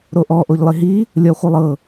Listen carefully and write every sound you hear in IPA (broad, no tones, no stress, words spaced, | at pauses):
ɾoʔɔ ʔoʎlˠiɦi | lʲɔχʷɛlˠɤ